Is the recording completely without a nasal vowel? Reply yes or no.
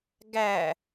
yes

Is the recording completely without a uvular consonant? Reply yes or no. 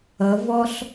yes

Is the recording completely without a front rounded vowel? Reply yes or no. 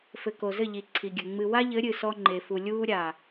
yes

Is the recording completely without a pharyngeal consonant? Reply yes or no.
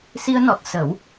yes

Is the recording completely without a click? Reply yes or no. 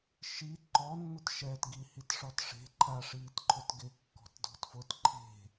no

